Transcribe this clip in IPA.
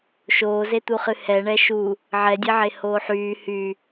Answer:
ʃ oː z e t̪ u χ ɨ h ɛ ɳ ɛ ʃ u | ʕ ɛ dʲ e ʕ e h oː ħ yː h y

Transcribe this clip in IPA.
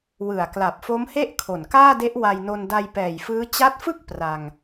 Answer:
w ɯ˨˩ a̯ k l a˨˩ p̚ f o˦˥ m h e˥˩ ʔ kʰ o˨˩ n k aː˥˩ d e˦˥ ʔ w a˧ j n o˧ n d a˧ j p ɛː˨˩ j f ɯː˦˥ t͡ɕ a˦˥ t̚ f ɯ˥˩ k̚ p r a˧ ŋ

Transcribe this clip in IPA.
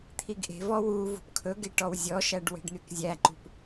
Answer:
t̪ʰ i ɡ ʔ e̤ v ɔ w u v ṳ p kʰ ɵ ɡ e ʈ ɔ w zʲ ɔ ʃ æ ɖ w e̤ ɖ n̪ y k zʲ æ ǃ ṳ p

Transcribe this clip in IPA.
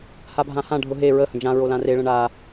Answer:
h a bʱ ã h ã ɖʱ ʊ ɦ e ɹ ə h ə̃ d͡ʒ ã ɹ o l ã r e ɭ ə̃ ɳ a

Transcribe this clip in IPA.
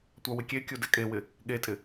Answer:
tʷ a w ɪ kʲ e kʲ u d ɛ kʼ e w ɪ | ɠ e tʼ ɪ

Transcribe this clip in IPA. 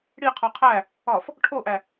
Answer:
ɽ i qʰ o qʰ æ | ɒ f | ʈʰ o ʔ æ

